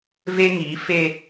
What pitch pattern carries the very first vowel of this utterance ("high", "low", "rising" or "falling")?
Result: high